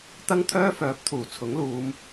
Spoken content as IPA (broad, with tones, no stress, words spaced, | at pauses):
t̪ɐ˥ŋt̪ʰœː˥fœː˨˥p̚ t̪ʰuː˨˩t͡sʰʊ˨˥ŋluː˨˧m